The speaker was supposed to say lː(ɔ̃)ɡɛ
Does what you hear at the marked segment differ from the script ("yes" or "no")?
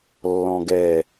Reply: no